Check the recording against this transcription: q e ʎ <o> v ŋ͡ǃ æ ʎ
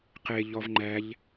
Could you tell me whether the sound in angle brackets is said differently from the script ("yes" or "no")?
yes